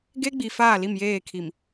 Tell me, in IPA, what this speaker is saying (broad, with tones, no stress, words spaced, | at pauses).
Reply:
ɡe˦ɡ͡bi˨ faː˦˨li˦˨mjeː˦˨kʰi˨m